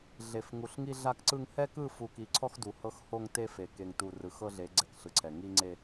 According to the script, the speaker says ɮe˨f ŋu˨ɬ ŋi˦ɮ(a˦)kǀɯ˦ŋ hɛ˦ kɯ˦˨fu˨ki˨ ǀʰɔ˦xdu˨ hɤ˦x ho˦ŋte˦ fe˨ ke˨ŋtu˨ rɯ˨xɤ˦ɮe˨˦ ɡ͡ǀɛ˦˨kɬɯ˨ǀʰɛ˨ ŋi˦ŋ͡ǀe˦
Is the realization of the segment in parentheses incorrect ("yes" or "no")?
no